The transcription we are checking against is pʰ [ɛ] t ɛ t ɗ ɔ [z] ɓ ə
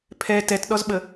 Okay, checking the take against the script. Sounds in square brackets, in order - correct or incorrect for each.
correct, correct

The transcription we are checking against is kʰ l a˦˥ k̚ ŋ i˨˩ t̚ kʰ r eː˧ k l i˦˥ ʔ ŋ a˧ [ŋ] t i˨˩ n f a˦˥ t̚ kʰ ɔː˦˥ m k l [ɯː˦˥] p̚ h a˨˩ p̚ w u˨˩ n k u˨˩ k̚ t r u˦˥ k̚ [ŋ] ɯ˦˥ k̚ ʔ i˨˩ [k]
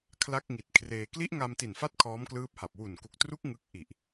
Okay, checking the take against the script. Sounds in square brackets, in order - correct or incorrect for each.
incorrect: m, correct, correct, incorrect: ʔ

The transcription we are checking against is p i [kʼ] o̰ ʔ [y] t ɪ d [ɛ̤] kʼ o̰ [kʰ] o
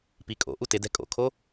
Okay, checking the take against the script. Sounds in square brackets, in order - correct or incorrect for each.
correct, incorrect: u, correct, correct

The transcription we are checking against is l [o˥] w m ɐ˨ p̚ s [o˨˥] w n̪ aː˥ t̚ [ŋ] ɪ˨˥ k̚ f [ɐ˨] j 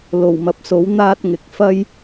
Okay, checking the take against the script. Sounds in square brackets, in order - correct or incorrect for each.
incorrect: o˨˩, correct, correct, incorrect: ɐ˥

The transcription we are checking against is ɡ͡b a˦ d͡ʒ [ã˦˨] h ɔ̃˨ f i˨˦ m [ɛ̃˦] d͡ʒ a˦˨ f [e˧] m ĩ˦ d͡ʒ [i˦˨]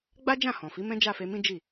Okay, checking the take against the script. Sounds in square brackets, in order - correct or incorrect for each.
correct, correct, correct, correct

